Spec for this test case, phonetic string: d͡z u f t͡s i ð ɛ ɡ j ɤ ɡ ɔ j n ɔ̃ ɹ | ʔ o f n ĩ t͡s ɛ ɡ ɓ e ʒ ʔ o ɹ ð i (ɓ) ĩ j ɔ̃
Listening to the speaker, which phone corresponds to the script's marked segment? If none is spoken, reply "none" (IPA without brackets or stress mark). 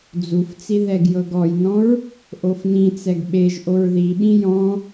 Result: ɓ